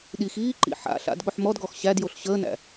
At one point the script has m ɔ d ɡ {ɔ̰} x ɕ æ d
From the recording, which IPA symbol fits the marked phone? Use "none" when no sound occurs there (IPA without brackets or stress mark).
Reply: ɔ